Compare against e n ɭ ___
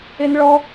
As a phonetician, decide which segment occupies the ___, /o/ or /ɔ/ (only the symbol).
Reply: ɔ